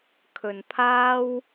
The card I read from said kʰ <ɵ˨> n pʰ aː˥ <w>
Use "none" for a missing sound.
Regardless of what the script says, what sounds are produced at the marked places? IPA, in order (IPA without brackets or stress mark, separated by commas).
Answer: ɵ˨, w